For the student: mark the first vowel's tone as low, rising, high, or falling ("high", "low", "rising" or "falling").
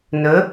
rising